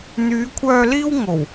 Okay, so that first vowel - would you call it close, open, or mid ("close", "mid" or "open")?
close